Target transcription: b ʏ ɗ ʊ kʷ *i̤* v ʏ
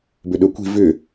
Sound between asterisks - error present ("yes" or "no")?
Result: no